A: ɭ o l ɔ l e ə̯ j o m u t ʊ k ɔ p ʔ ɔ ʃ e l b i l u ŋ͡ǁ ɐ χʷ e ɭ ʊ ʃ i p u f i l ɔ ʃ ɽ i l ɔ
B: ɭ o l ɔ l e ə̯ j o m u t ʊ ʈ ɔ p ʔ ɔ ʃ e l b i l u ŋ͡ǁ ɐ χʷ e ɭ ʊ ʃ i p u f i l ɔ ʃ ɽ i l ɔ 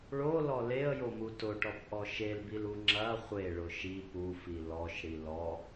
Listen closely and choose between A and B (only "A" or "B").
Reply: B